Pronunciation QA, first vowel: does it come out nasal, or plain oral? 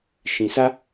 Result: nasal